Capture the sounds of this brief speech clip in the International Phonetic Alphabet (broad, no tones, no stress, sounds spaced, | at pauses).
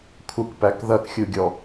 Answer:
kʷʰ ə kʷ p æ k ð ɐ k xʲ u ɡʲ ɔ